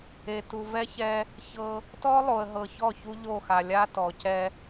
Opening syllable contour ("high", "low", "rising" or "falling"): low